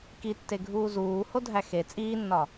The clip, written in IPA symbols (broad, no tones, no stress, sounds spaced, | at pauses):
k i tː e ɡʱ uː z uː h o dʱ æ x e t͡sʼ iː nː ɒ